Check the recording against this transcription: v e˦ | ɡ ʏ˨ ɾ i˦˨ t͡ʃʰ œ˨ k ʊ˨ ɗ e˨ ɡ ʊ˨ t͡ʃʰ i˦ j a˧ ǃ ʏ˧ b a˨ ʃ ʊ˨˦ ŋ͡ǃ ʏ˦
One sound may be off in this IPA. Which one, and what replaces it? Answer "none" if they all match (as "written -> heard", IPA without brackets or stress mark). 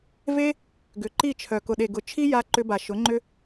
ɾ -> ǃ